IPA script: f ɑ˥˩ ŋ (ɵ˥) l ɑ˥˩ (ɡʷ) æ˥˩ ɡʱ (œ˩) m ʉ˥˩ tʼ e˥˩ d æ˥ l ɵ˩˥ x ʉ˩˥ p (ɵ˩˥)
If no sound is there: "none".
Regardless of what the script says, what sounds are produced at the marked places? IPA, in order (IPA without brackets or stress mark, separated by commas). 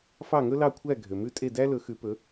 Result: ɵ˥, kʷʰ, ø˩, ɵ˩˥